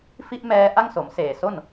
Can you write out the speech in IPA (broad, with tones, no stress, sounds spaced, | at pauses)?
f i˦˥ ʔ m ɛː˧ ʔ a˥˩ ŋ s o˩˦ m s eː˨˩ s o˥˩ n